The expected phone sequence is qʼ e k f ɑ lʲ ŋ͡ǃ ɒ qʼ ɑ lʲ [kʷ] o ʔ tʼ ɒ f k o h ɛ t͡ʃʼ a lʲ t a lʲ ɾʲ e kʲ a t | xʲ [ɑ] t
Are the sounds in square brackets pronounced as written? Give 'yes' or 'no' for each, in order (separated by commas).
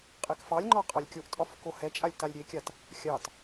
no, yes